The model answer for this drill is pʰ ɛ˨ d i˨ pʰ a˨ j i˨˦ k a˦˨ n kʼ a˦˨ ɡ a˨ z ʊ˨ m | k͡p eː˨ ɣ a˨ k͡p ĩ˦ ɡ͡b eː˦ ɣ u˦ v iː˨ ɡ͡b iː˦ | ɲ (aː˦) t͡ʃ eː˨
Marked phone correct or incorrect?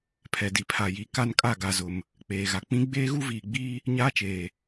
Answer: correct